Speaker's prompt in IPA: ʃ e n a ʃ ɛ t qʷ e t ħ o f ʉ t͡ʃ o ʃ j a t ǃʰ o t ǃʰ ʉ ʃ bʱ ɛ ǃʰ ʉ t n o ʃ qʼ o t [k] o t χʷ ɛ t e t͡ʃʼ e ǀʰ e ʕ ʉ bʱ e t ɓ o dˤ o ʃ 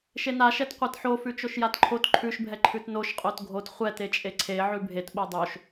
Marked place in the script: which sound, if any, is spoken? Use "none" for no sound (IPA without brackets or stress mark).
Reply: ɡʱ